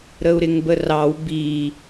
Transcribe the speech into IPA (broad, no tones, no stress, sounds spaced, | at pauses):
ɾ ə u̯ ɾ ɪ ŋ b ə r ɑ w b i